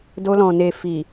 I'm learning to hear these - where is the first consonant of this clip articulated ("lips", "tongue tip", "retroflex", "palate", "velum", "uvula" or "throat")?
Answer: tongue tip